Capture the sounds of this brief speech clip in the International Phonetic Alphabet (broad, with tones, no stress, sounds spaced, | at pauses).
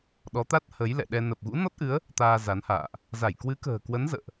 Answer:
ɗ ɔ˨˦ t̪ a˦˥ t̚ h ə˨˦ j l ɛ̰˧˨ ɗ ɛ˧ n ə˨˩ p̚ ɣ ṵ˧˥ n ɔ˦˥ t̚ ʔ ɨ˨˦ ə̯ | t̪ aː˧ z a˨˦ n h a̰ː˧˨ ʔ | z a˧˩ j k w ɨ˨˦ k ə̤ː˨˩ k w ə˨˦ n z ə̰ː˧˨ ʔ